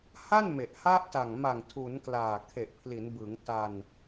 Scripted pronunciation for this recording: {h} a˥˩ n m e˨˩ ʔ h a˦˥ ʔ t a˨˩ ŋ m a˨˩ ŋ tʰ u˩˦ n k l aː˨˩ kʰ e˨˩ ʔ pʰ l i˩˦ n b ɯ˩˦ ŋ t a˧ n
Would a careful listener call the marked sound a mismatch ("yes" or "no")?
no